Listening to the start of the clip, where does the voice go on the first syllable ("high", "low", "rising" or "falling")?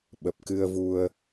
low